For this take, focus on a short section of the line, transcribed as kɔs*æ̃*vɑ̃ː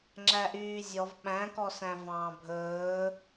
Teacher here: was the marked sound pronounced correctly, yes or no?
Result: yes